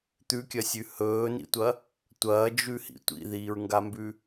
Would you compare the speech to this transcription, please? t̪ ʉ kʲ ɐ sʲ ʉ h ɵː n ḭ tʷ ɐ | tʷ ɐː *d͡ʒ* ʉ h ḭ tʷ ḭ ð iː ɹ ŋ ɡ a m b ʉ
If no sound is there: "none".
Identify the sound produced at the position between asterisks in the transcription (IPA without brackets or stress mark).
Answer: d͡ʒ